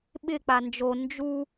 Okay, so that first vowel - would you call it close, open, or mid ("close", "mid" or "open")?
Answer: close